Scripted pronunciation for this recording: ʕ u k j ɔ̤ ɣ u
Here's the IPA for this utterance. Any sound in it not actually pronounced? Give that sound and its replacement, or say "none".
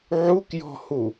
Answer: ɣ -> h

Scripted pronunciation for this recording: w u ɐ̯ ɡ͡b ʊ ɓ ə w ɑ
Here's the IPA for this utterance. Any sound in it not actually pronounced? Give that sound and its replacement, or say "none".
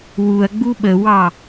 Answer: ʊ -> u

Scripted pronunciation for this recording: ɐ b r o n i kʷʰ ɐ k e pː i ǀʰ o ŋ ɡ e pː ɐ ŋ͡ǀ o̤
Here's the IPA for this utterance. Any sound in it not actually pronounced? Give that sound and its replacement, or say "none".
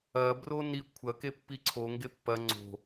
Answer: none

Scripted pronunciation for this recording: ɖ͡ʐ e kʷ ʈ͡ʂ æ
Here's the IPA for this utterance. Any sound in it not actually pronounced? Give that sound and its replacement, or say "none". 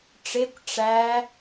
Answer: ɖ͡ʐ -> ʈ͡ʂ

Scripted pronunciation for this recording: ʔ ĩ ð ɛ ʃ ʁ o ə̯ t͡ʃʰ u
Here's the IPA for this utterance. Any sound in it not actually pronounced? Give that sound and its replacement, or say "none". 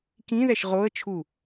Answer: ʔ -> k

